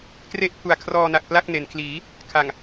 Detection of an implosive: absent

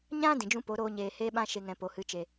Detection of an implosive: present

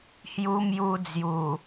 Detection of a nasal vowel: absent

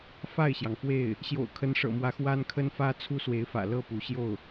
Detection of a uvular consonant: absent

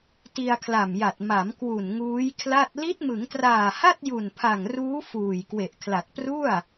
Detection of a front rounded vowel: absent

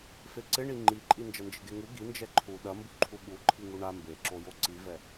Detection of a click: present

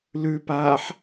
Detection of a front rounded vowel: absent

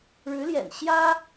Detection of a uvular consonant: absent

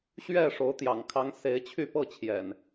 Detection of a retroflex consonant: present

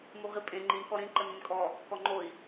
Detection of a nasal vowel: present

